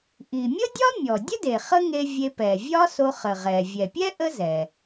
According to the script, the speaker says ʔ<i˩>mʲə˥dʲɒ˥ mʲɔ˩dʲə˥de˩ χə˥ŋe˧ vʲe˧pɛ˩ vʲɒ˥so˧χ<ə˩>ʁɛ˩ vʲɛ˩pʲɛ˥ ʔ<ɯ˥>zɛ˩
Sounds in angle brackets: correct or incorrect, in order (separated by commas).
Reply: correct, correct, incorrect